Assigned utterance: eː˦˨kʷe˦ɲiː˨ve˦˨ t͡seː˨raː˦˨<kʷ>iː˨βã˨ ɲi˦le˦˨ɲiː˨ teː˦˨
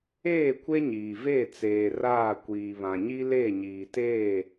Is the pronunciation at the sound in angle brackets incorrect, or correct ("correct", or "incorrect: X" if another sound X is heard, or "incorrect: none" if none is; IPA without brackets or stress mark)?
correct